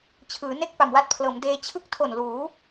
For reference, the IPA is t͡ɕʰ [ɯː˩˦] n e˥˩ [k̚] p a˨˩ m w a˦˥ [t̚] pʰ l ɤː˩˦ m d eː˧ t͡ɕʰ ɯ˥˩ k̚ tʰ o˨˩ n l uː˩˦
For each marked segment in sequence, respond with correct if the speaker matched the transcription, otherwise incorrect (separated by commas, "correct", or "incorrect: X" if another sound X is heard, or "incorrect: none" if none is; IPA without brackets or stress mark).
correct, correct, correct